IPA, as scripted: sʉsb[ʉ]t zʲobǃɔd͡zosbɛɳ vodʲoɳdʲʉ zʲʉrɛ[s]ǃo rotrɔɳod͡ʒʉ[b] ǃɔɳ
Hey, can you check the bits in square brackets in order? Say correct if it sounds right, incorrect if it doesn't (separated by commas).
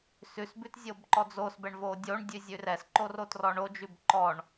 correct, correct, correct